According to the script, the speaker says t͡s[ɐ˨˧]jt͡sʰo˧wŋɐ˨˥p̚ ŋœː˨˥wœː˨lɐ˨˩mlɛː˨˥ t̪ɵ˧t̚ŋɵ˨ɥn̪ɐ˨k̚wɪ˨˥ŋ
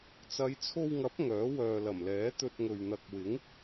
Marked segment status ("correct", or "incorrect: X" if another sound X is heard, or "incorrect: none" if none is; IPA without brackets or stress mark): correct